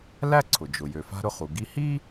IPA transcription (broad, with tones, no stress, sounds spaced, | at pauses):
l æ˥ ǀʰ ʊ˩ d͡ʒ ʊ˩ j ø˩ f a̤˧ ɾ ʊ˧ χ u˩ ɡ i˧ h i˥